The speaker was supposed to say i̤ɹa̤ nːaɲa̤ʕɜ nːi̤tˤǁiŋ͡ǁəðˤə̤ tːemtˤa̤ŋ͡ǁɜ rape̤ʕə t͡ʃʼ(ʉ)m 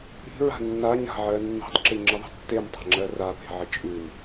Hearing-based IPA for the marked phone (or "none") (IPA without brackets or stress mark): ʉ